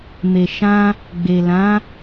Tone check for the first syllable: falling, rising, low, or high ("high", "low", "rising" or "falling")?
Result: low